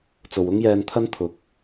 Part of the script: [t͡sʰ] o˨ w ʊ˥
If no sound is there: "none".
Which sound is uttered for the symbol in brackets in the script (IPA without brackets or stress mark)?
t͡s